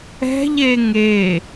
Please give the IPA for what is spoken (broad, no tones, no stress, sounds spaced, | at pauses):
ɛ̤ ʎ e ŋ e